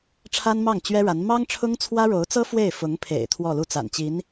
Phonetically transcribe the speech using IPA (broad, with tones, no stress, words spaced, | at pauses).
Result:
ʈ͡ʂʰa˥nmɑ˥˩ŋt͡ɕɥɛ˥ɻa˧˥n mɑ˥ŋʈ͡ʂʰʊ˥ŋt͡sʰwä˥ ɻo˧˥ʊ̯t͡sɤ˥ fwe˥˩ɪ̯fʊ˧˥ŋpʰḛ˨˩ɪ̯ t̪ʰwɔ˥˧lu˥˩t͡sa̰˨˩nt͡ɕi˧˥n